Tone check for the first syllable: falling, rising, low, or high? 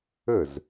falling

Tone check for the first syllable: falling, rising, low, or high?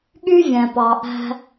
high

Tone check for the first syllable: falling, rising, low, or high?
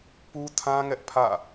high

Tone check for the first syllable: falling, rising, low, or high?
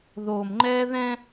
low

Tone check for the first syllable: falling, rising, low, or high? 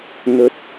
rising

